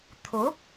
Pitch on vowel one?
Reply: rising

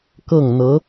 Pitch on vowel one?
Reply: falling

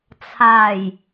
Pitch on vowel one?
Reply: low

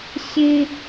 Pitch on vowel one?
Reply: high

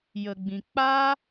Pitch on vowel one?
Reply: low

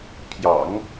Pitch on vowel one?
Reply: low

